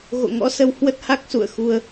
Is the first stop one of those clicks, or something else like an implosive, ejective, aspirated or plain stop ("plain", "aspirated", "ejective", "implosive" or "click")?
plain